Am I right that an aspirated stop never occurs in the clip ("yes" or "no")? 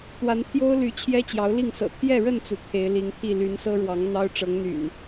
no